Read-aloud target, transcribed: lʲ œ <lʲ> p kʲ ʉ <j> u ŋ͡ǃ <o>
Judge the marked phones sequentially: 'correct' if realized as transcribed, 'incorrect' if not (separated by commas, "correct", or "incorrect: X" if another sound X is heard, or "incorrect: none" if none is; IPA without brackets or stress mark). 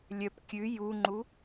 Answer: incorrect: none, correct, incorrect: u